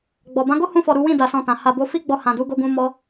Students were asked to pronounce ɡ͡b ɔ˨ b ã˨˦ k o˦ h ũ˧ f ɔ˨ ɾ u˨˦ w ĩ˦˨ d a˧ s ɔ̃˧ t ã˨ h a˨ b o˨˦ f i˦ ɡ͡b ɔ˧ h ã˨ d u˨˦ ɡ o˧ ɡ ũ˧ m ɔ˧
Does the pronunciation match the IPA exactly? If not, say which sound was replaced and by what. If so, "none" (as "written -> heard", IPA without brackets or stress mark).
k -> ɡ